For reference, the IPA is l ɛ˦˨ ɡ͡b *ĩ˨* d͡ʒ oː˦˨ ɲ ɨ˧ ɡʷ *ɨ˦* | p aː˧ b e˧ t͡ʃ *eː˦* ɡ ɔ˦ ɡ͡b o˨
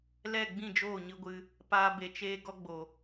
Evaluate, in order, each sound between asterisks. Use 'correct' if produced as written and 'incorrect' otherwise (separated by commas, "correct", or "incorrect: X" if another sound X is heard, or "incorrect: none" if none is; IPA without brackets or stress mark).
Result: incorrect: ĩ˦˨, incorrect: ɨ˧, correct